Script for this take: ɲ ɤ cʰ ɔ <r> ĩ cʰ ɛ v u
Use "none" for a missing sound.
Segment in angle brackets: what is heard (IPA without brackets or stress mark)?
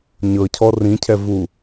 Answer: r